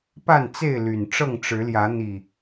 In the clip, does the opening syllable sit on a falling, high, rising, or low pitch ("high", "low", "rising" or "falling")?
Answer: falling